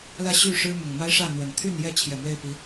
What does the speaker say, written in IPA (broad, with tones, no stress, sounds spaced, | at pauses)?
l ä˥˨ ɕ y˥˨ ʂ ɻ̩˦ m ʊ˨˩ ŋ m a˦ ɪ̯ ʂ ä˥˨ n̪ w ə˨˩ n t̪ʰ y˥˨ n j ɛ˥˨ t͡ɕʰ j ɛ˨˩ m w e˥˨ ɪ̯ p i˨˦